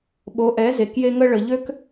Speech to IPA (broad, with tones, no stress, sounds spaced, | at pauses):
ɓ o˨˦ ʔ ɛ˨˦ z e˨ k j e˦ ŋ ə˦ ɭ ə˨ ʎ ø˦ k